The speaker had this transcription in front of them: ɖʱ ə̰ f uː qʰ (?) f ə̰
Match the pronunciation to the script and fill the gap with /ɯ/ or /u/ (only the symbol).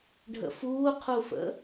u